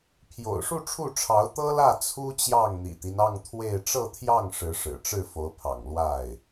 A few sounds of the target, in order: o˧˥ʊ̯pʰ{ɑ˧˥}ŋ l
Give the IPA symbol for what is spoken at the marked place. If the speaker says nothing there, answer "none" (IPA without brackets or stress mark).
ɑ̰˨˩